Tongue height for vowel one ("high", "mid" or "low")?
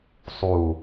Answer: high